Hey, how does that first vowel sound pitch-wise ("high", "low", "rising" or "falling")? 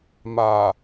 low